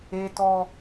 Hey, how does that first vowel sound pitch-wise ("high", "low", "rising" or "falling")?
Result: high